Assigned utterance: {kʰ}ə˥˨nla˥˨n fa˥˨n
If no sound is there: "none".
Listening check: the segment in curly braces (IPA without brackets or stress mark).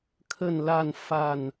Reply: kʰ